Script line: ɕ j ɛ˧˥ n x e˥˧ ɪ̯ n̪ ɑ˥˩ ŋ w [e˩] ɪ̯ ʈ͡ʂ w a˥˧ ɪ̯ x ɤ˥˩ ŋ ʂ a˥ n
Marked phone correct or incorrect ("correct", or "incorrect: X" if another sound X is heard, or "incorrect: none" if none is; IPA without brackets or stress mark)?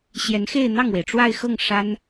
correct